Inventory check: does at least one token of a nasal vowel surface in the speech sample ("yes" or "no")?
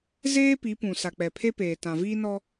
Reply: yes